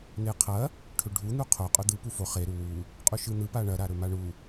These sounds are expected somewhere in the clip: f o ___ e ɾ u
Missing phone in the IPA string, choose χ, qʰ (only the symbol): χ